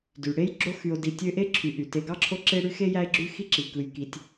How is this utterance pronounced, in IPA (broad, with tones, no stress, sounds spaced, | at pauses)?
d y˩ ɽ e˥ j ɡ͡ǁ o˦ x y˨ o̯ d i˨ tʲ ø˦ ʔ e˥ ǁʰ y˨ ʔ y˩ t e˨ ɡ ɑ˥ ǁʰ o˦ ǁ e˦ ɽ y˦ x e˥ j æ˦ e̯ ɡ͡ǁ y˦ x i˥ ǁ i˩ k ɯ˨ j k i˨ tʲ